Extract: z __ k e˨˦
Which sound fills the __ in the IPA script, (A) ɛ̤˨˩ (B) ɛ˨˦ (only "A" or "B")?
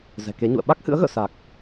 A